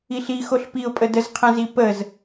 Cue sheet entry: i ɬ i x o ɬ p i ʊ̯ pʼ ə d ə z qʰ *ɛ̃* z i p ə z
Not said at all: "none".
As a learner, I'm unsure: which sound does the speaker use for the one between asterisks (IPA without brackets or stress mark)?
ɛ̃